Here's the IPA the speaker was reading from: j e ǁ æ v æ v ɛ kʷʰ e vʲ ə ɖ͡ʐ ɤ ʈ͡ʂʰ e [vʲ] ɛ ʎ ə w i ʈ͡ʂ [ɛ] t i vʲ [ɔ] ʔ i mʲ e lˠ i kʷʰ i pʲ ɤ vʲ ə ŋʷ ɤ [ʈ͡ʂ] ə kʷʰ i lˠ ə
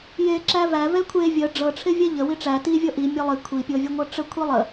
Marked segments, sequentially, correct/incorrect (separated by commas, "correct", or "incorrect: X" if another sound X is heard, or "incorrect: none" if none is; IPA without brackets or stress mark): correct, incorrect: æ, incorrect: ɤ, correct